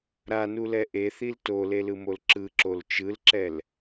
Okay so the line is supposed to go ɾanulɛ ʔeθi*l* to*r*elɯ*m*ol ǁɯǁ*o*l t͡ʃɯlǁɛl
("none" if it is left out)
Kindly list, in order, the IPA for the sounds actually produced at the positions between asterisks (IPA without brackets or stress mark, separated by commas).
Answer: l, l, m, o